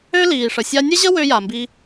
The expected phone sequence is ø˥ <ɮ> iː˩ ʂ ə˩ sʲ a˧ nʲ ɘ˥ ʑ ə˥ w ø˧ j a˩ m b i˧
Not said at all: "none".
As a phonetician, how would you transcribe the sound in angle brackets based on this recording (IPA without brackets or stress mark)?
l